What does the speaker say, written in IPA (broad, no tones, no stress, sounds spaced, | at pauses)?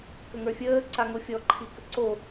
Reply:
k ə ŋ ə˞ fʲ əː ǀ a ŋ o fʲ ɔ ǃʰ i k ə ǀ o